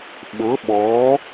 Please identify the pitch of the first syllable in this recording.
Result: rising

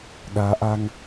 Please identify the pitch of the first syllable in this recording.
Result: rising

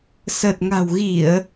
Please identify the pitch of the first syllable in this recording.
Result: low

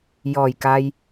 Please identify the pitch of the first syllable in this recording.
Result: low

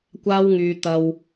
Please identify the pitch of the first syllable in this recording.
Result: high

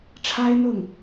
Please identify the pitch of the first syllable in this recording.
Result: high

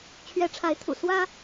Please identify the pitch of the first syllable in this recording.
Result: rising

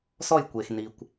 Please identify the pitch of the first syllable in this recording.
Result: falling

